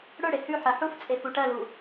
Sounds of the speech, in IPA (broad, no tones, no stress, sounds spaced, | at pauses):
ɽ ɵ ɽ e h ʉ ħ ɜ ħ u f t͡sʼ e f u ʈ ɜ l u